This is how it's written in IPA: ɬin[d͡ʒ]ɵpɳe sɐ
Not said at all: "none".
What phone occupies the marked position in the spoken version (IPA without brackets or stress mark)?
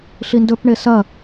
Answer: d